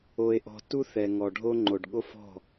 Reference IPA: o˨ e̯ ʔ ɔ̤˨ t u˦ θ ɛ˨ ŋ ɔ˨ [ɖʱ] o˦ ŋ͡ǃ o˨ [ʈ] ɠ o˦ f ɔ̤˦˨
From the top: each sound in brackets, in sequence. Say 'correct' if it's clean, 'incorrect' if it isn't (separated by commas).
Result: correct, incorrect